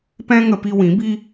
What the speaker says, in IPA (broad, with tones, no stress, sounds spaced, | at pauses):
p ɛ̃˦ ŋ ə˧ p i˧ w ĩ˨˦ b i˦